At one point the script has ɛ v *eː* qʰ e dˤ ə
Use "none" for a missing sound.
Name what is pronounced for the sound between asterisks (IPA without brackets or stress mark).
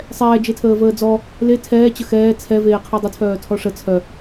eː